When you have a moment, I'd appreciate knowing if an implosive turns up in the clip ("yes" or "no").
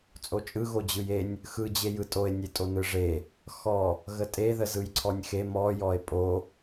no